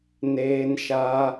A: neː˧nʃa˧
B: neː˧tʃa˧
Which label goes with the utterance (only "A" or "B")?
A